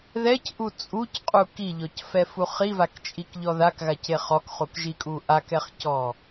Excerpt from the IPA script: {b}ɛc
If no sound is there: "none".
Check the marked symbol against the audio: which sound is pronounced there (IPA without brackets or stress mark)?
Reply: ð